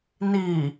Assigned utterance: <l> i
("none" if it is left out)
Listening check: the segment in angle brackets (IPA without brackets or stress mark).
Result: n